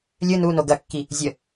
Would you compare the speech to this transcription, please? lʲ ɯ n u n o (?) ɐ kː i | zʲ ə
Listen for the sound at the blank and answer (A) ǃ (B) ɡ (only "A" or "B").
B